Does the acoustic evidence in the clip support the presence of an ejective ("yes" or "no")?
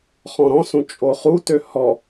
yes